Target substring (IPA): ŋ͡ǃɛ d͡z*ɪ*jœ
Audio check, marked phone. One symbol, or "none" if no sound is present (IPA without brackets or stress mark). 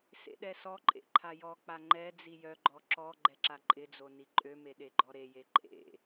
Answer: i